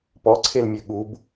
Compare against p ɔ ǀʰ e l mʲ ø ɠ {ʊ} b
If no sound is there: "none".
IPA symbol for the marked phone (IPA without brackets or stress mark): u